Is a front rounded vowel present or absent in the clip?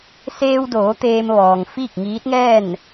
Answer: absent